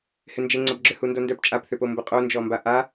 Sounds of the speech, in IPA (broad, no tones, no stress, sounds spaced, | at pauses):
h ɪ n d͡ʒ ɪ ŋ͡ǀ ɐ b ɡ͡ǁ ʏ h u n d o n d œ p t͡ʃʼ a p θ ʏ p o m b ə qʼ o n d͡ʒ ɔ m b a ʔ a